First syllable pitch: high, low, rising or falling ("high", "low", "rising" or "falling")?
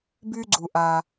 high